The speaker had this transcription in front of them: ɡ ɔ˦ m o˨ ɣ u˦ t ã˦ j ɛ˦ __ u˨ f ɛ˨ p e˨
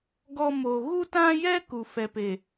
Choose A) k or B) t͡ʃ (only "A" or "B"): A